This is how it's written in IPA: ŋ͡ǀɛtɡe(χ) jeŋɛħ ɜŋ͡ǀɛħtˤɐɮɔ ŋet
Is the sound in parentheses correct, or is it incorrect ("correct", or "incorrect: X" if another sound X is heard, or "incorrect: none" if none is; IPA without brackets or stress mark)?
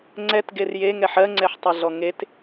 incorrect: r